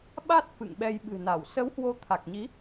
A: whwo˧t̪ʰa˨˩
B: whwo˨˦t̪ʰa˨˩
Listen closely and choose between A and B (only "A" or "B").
B